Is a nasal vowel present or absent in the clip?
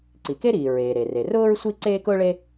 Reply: absent